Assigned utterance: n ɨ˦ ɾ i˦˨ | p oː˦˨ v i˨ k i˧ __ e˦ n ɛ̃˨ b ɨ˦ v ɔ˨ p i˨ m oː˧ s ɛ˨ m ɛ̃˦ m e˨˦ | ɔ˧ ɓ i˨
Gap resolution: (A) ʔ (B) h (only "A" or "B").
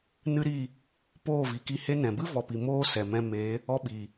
B